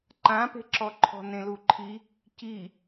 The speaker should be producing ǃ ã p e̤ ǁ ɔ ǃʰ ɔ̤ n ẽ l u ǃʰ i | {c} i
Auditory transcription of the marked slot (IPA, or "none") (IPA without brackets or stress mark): c